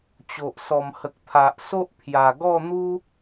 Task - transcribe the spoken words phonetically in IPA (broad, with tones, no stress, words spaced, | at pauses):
t͡ɕo˨ʔ sɔ˨˩m hə˨k̚ t̪ʰa˨ʔ so˦ʔpʰja˨˩ɡɔ˥˧n̪u˦